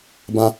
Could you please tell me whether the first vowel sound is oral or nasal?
nasal